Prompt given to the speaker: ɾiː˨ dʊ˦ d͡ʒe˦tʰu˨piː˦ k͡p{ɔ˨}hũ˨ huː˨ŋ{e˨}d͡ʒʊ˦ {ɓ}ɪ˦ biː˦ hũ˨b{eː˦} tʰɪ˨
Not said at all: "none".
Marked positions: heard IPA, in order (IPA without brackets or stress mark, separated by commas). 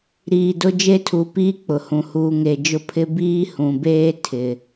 ʊ˨, e˨, pʰ, eː˦